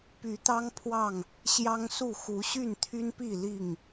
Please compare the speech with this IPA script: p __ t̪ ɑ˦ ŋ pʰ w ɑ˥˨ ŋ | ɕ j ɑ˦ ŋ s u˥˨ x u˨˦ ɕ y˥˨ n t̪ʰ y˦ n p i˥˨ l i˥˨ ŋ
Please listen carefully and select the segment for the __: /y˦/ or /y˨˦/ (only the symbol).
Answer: y˨˦